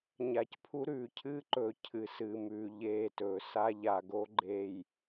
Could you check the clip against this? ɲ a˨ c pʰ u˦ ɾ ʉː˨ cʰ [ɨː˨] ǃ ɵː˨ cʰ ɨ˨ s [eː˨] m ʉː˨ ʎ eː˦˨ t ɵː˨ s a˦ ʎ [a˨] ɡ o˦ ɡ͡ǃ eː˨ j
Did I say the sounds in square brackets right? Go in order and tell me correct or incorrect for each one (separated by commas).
incorrect, incorrect, correct